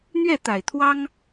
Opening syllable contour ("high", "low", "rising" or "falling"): falling